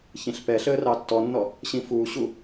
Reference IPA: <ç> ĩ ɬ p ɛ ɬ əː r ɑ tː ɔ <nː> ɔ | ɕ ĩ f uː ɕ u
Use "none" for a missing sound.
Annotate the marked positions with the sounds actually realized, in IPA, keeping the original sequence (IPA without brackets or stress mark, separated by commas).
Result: ç, nː